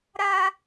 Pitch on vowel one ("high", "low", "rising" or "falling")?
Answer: high